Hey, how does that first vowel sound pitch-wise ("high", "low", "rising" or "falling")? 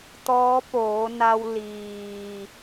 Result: rising